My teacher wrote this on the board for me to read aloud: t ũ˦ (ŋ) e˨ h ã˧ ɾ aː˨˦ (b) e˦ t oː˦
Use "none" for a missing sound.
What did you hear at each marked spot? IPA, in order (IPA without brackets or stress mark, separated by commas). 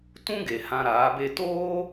ɡ, b